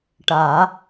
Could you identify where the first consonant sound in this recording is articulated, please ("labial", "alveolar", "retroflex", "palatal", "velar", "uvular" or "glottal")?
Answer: retroflex